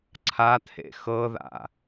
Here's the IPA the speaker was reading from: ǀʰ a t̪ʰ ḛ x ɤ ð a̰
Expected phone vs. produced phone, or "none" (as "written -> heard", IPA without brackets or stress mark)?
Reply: none